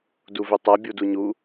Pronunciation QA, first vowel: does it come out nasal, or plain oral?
oral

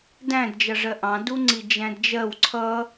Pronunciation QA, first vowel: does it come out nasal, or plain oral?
nasal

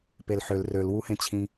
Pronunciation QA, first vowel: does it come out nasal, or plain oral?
oral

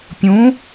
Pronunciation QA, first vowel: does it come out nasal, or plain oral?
nasal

